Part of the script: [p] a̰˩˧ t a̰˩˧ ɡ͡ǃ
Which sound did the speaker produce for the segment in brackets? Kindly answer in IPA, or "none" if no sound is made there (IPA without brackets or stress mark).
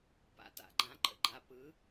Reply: p